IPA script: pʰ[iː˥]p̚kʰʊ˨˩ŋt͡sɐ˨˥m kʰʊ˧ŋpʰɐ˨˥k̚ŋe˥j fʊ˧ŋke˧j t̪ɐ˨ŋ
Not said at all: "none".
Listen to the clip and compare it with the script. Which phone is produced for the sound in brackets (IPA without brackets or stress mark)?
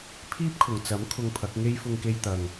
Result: iː˥